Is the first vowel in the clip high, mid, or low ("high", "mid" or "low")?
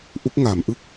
high